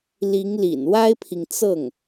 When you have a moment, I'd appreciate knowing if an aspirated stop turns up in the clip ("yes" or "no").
yes